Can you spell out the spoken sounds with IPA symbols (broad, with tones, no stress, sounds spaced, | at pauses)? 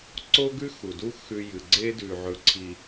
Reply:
ǀ o˦ ɡ ʉ˦ x u˨ d u˦ x ʉ˦ j ɨ˨ ɡ͡ǀ e˦ d ʉ˨ ʕ ɵ˨ ǀʰ i˨